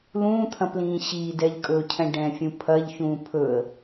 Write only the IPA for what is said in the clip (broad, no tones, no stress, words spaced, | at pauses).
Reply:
lũːt̪ʰɐ̃plĩː ɕiːdɛʎkʼɵːcʰɛ̃ ɖɛ̃fʲũ pʰɐʎçũː pʰɵə̯